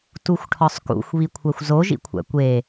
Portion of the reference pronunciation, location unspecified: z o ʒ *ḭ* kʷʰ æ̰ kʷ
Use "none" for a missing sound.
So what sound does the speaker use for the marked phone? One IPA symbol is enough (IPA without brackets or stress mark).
ḭ